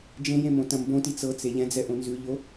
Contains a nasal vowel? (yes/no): yes